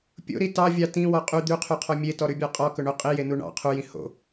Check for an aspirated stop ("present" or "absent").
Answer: present